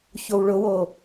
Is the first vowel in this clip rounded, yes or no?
yes